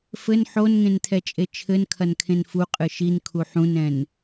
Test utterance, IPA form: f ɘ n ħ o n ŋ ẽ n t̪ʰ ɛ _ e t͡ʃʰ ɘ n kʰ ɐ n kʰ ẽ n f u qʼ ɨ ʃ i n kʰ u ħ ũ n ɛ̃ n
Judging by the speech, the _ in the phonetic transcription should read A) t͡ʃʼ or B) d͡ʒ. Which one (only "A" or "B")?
A